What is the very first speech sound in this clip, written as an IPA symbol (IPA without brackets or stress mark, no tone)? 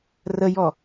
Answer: r